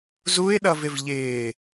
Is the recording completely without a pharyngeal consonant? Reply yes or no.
yes